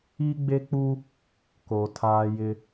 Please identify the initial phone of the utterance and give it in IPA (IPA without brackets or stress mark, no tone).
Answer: i